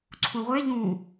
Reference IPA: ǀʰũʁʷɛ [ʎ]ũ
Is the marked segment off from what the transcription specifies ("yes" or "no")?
no